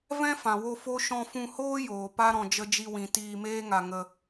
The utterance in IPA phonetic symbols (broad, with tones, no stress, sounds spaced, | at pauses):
v ɛ̃˦ f ã˨ w o˧ f o˦ ʃ ɔ̃˧ f ũ˧ h oː˦ j oː˨ p a˦ ɾ ɔ̃˧ d͡ʒ ə˧ d͡ʒ i˧ w ĩ˨ t iː˧ m eː˦ ŋ a˧ ŋ ə˧